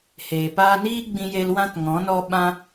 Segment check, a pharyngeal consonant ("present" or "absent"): absent